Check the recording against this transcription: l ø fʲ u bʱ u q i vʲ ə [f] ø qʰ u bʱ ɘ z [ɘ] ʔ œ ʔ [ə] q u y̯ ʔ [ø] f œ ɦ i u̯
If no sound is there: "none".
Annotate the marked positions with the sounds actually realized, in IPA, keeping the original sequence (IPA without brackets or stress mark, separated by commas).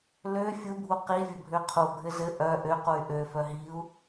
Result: bʱ, ɘ, ø, ø